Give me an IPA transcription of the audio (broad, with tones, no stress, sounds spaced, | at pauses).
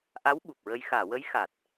ʔ a˧˥ w ɓ u˨˩ p̚ ɹ ə˧ j x aː˨˩˨ w ə˧˥ j x a˨˩ t̚